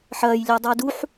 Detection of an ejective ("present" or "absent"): absent